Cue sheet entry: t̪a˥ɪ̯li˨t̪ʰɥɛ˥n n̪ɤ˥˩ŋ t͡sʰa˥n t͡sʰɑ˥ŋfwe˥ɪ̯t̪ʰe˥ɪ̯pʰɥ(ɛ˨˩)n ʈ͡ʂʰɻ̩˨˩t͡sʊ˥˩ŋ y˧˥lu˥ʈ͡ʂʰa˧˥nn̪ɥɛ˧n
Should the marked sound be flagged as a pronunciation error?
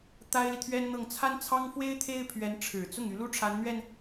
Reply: yes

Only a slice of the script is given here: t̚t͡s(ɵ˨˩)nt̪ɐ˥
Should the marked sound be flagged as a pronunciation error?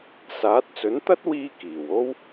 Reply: yes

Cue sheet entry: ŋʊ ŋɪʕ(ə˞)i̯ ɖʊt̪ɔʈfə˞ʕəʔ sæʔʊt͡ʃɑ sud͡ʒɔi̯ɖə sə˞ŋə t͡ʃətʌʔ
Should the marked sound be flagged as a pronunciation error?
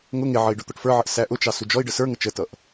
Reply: yes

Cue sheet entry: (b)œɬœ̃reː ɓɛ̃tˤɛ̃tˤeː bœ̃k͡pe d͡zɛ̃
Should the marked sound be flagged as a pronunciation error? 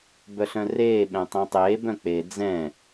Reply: no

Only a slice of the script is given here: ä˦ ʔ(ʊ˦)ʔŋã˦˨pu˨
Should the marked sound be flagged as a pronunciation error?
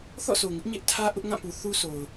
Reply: no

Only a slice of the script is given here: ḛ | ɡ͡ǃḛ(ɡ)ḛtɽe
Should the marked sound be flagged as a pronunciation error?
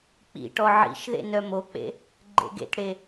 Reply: no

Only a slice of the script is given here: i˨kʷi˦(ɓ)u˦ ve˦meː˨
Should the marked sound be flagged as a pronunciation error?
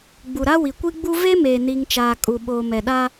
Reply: yes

